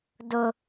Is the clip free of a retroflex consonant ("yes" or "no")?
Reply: yes